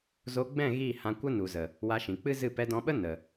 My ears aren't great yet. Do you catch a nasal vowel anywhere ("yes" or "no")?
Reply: yes